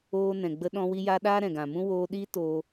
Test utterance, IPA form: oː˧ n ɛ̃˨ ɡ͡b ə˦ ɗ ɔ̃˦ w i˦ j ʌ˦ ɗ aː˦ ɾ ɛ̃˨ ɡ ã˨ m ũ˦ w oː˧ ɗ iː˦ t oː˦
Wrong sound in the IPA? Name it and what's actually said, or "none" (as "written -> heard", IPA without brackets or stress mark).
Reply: ʌ˦ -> a˦